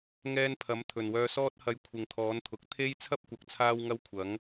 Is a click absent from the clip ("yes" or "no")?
yes